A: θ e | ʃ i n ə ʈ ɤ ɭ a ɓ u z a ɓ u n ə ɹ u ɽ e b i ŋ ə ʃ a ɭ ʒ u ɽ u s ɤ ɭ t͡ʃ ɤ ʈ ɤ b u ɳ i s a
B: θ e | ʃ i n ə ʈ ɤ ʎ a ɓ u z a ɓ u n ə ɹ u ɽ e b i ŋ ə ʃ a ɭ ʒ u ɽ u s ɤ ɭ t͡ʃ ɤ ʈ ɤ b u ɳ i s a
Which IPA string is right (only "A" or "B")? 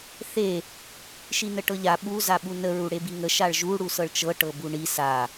B